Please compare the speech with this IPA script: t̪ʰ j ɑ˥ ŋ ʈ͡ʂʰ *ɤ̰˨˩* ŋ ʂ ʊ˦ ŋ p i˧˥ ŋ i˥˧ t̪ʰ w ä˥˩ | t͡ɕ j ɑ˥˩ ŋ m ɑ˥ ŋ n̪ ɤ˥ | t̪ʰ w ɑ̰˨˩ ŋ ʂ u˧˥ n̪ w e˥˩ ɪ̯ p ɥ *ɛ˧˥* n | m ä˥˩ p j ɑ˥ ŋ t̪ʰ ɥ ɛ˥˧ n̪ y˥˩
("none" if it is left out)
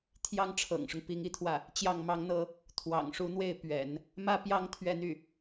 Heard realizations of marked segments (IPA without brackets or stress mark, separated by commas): ɤ̰˨˩, ɛ̰˨˩˦